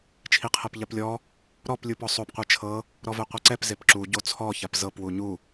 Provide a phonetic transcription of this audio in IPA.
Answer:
t͡ʃʰ i qʰ ɛ p ʎ a p lʲ ɔ | ɾ ɔ p lʲ u p ɔ sˤ o p qʷ e t͡ʃʰ ɤ | ɾ ɔ v ɛ qʷ a ǀ ɛ p z e p ǁ u ɟ o t͡sʰ ɔ ç a p z ɤ p w u ɲ u

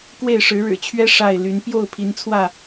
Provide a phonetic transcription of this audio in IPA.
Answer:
k w e˥˨ ɪ̯ ʂ ɻ̩˨˦ ɻ ɻ̩˨˩ t͡ɕʰ ɥ ɛ˦ ʂ a˥˨ ɪ̯ l y˨˦ n p j o˥˨ ʊ̯ pʰ i˨˦ n t͡sʰ w ä˥˨

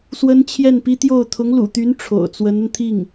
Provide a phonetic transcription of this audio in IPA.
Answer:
s w ə˥ n t͡ɕʰ j ɛ˥˩ n p i˥ t̪ j o˥˩ ʊ̯ t̪ʰ ʊ˧˥ ŋ l ṵ˨˩ t̪ y˧˥ n ʈ͡ʂʰ o̰˨˩ ʊ̯ t͡s w ə˧˥ n ə˧ n t̪ʰ i˥˩ ŋ

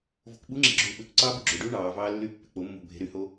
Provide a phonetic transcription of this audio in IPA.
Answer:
v o̤ k ɓ u ŋ͡ǁ e̤ ɡ͡ǁ uː ɓ ø k ǀ ɑː b y ɡ͡ǁ o ɖ uː ɳ ɑː v ɑː lː y pː e̤ k͡p o mː o̤ bʱ e̤ ɾ y h o

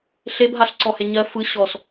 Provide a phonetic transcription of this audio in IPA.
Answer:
ɬ e b ɦ a ɬ ǀ ɔ h e ɲ ɜ f ɯ ɕ ɔ s

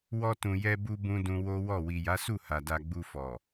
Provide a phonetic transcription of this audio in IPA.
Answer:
w ɔ˧ t ũ˨ j ɛ˧ b u˧ b ũ˧ d ũ˧ w o˦ w ɔ˦˨ w i˨ j a˨˦ s u˦˨ h a˨ d a˧ ɡ͡b u˧ f ɔ˨

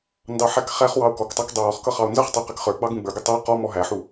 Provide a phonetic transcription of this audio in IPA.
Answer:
n d ɑ ħ æ k χ æ χ w ɑ o̯ k ɔ k tˤ ɑ k dˤ ə˞ w ɔ χ k ʌ χ ɑ o̯ n z ʌ χ tˤ u q ɛ k χ ə˞ ɡ͡b ɑ ɡ ũ ɡ͡b ə˞ ɡ ɪ tˤ æ q ɔ m ɔ ɦ æ ħ u

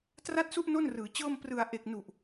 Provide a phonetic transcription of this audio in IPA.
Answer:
t r a˥˩ t̚ s u˥˩ ʔ n o˥˩ n r ɯː˩˦ t͡ɕ ɤː˥˩ m p r ɯ˨˩ a̯ ʔ e˨˩ k̚ n u˨˩ ʔ

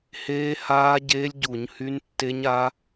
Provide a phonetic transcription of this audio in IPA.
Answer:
h eː˦˥ h aː˦˥ ɟ eː˦˥ lʲ ɟ u˧˩˧ ɲ h y˦˥ n tː e˦˥ ɲ a˦˥

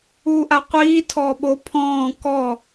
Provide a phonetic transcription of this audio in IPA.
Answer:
uː ʔ a qʷ iː tʰ ɔː ɓ o pʰ ɔ̃ː k ɔ

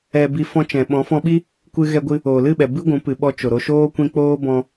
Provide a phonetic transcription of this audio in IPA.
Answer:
ɛ˧ b i˧ f ɔ̃˧ t͡ʃ ɛ̃˨ ɓ ɔ̃˨˦ f ɔ̃˧ ɓ i˦ | kʷ ɨ˦ ɣ ɛ˧ ɡʷ ɨ˧ | oː˨ l ɨ˦˨ ɓ ɛ˨ b ɨ˦ ɡʷ ũ˨˦ p ɨ˨ ɓ ɔ˧ t͡ʃ o˨ ɾ o˧ ʃ oː˦ kʷ ĩ˧ k͡p oː˦ b ɔ̃˧

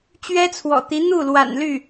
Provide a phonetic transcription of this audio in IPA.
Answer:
t͡ɕ ɥ ɛ˥ t͡sʰ w ɔ̰˨˩ t̪ i˧˥ n̪ u˥˩ l w a̰˨˩ n l y˥˩

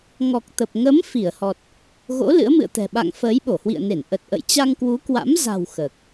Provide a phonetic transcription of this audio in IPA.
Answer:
ŋ ɔ˨˩ k̚ t̪ ə˨˩ p̚ ŋ ə˨˦ m f i˧˩ ə̯ h ɔ˨˩ t̚ | ɣ o̰˧˥ l ɨ̰˧˥ ə̯ m ɨ̰˧˨ ə̯ t̪ ɛ̤˨˩ ɓ a̰˧˨ ŋ f əː˨˦ j ɓ o˧˩ h w ḭ˧˨ ə̯ n e˧˩ n ʔ ə˨˩ t̚ ʔ ə̰˧˨ j t͡ɕ a˧ ŋ k w u˨˦ k w a̰˧˥ m z a̤˨˩ w x əː˨˩ k̚

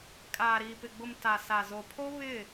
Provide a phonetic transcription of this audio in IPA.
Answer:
kʼ aː˨ ɾ iː˨ p ɪ˨ ɡ͡b ʊ˨ m t a˨ s a˨ z o˨ pʰ o˦ β ɪ˦˨

